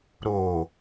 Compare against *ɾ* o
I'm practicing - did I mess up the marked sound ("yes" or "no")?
no